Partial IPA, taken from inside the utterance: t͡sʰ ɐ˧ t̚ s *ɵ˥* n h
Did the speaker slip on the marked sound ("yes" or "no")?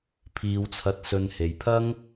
yes